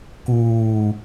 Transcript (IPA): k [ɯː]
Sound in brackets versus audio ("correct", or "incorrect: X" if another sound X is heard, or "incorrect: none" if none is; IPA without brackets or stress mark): incorrect: uː